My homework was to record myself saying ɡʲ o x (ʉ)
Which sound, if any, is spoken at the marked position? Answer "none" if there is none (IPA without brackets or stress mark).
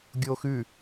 ʉ